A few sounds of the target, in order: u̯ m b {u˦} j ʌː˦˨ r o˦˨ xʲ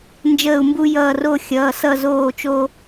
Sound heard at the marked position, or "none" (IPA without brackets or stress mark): u˦